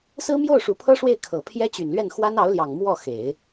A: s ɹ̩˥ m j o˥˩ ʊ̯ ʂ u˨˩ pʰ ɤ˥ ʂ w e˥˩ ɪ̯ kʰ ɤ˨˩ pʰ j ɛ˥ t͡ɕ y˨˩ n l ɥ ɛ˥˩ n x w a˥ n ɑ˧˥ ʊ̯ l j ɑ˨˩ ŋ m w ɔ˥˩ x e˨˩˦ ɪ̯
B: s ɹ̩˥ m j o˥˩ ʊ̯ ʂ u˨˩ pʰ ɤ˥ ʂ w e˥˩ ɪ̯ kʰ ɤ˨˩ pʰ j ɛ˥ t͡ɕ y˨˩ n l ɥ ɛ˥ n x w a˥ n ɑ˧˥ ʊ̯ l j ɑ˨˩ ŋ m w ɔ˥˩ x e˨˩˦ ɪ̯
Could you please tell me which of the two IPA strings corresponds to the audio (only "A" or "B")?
A